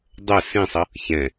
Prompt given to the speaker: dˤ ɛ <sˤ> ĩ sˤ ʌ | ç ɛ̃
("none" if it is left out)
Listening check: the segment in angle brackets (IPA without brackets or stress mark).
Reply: s